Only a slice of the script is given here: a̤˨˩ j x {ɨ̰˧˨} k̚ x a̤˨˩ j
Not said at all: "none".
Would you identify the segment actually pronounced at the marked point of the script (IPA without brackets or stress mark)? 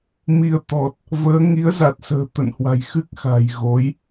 ɨ˦˥